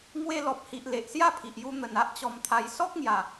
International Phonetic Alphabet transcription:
ŋ w e˧ l ɔ˨ p̚ h i˨ ʔ l e˨ ʔ s j a˥˧ pʰ i˨ ʔ j u˧ n̪ ə˨˩ n a˦ ʔ t͡ɕ ɔ˧ m t̪ʰ a˧ j s ɔ˦ k̚ ŋ j a˨˩

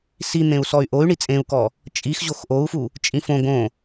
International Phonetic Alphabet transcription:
s i n̪ ẽ u̯ s ɔ y̯ ʔ o y̯ ɳ i t͡sʼ ẽ u̯ k ɔ | t͡ʃʼ i x ʑ o x ʔ o u̯ f u | t͡ʃʼ ĩ f õ ɡ õ

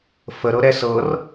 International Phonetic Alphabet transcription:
f ə ɾ ɤ ɾ ɛ s ɤ r

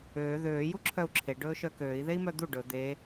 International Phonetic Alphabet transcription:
øː ð øː j u ǁʰ œ u̯ ǁʰ e ɖ ɵː ʃ œ k øː i̯ ð e i̯ m œ d̪ u ɖ ɵ d̪ e

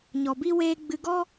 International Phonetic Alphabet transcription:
ɲ ɔ˨ b i˦ w eː˧ ɡ͡b ɨ˧ ɡ ɔ˦

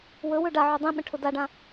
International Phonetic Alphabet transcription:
w ɵ w ɵ ɖ a ʕ u dˤ ĩ ɓ ə̃ ʈʰ ʊ d a ɖ ã

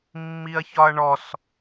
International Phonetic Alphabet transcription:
mː i ɐ̯ ç ɒ ɐ̯ ɳ ɔ s

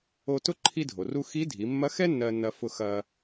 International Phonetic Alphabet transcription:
o˧ t ʊ˥ ǃʰ i˧ dʱ o˩ r u˧ x i˧˥ dʱ i˩˧ mː ɐ˧˥ x ɛ˥ nː ɜ˧ nː ɐ˧ f ʊ˧ x ɐ˧

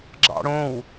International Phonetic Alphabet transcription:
ɡ͡ǁ ɑ̰ ɽ õ w

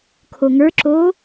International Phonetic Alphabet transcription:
kʰ o ŋ ə˞ ǁ oː

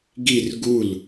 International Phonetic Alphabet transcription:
ɡ i r ɡ u l

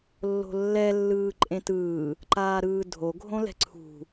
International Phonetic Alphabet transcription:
lː o̤ lː ɛ lː ɯː ǃʼ ẽ t ɯː | ǃ aː ɾ ɯː dʱ o ɡʱ õ l ɛ̤ ǀʰ ṳ

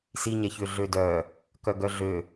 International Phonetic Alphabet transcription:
s i ɲ ɛ ç ø ɮ ø d œ | k œ ɡ œ ɮ ø

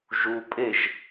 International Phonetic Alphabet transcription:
ʒ u pʼ e ʒ

